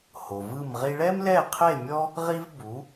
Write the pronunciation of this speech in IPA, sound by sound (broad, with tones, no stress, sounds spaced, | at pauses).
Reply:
h o˩ v ɯ˥˩ m ʁ i˧ ɭ ɛ˥ m l ɛ˥˩ qʰ e˥˩ mʲ ɔ˥ | ʁ i˥ v b u˩˥